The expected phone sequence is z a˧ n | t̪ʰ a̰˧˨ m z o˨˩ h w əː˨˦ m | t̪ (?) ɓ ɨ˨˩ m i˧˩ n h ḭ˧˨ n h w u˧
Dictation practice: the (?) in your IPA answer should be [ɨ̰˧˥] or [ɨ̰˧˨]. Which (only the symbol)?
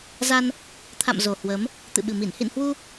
ɨ̰˧˨